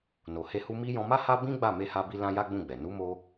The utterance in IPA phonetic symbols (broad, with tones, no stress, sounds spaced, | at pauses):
n o˨ h e˧ h u˧ m i˦ j ɔ̃˧ m a˦ h a˦ b ĩ˦ ɡ͡b a˦˨ m e˧ h a˧ b i˧ l ã˦ j a˦ ɡ͡b ũ˦˨ ɡ͡b ɛ˨ n u˨˦ m o˧